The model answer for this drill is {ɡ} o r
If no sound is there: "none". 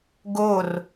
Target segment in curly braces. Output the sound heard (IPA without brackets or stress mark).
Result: ɡ